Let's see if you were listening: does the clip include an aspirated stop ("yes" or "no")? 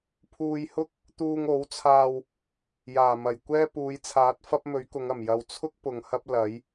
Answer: yes